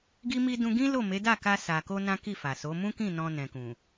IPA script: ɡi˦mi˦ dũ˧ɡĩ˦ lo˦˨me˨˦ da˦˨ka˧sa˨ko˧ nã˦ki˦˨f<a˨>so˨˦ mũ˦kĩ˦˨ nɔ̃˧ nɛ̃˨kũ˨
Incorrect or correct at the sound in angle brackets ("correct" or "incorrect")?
correct